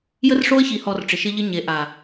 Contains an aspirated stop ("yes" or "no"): no